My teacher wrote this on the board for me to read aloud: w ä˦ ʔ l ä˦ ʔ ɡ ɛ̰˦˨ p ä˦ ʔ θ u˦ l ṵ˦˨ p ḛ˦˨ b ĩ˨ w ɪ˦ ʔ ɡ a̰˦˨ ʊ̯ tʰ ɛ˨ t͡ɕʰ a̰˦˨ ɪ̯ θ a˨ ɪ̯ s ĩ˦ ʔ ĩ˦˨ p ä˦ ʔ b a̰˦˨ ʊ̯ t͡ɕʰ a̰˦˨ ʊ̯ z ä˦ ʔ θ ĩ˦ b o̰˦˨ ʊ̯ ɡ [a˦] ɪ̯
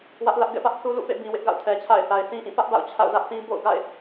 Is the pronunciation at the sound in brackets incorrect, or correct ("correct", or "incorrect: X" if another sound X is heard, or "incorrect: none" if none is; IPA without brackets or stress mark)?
incorrect: a̰˦˨